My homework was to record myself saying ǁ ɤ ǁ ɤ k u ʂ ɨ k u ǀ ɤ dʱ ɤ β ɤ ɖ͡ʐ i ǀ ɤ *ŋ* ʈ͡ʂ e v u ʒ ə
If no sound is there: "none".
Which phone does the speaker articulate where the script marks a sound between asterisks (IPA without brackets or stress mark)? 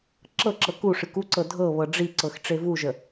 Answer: x